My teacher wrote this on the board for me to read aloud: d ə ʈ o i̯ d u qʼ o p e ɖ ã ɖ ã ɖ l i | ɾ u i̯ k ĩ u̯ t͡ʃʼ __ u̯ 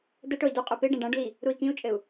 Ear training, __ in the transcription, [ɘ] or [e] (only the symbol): ɘ